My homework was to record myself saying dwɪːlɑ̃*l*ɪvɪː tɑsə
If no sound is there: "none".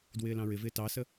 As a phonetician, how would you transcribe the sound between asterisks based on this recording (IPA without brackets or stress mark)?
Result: ɹ